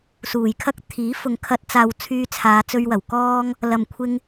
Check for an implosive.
absent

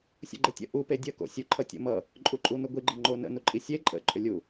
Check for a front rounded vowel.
present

